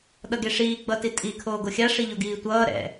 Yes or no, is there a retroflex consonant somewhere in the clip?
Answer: yes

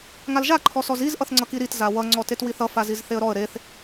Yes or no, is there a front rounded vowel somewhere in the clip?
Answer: no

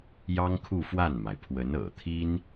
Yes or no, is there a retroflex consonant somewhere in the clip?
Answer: no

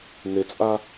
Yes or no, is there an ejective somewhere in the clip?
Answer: yes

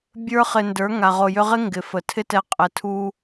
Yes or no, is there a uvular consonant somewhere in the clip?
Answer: yes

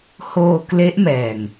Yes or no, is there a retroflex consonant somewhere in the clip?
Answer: no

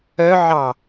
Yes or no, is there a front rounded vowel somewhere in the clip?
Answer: yes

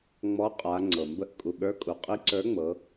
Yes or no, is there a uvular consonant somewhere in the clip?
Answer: yes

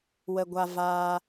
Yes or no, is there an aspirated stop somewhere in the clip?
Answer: no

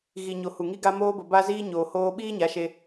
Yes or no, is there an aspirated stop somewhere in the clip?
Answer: no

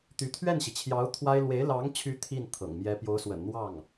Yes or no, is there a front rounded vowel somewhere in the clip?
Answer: yes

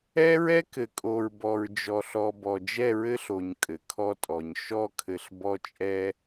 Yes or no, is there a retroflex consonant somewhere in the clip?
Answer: no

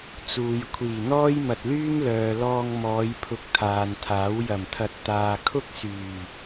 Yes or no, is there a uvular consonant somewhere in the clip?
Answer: no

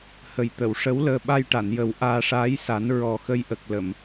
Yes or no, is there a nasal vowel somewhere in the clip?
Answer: no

